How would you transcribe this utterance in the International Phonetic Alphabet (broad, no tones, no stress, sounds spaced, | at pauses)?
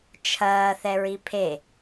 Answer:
t͡ʃʰ ɐː θ ɛ ɹ i pʰ e